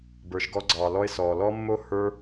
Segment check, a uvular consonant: absent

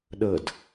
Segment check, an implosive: present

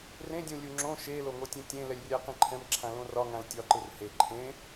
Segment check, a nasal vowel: present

